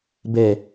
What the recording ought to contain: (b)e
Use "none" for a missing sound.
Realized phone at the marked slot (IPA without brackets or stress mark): b